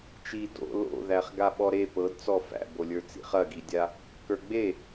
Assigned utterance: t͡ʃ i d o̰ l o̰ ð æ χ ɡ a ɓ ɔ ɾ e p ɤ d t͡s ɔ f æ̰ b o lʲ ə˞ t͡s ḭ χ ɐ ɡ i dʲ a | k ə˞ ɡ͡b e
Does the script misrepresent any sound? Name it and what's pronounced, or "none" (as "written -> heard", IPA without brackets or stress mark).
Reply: none